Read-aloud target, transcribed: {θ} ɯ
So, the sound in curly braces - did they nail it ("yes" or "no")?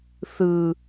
yes